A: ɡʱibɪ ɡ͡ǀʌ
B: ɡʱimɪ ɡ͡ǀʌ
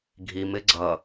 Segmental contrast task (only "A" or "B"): B